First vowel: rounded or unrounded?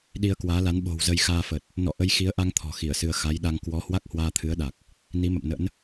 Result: unrounded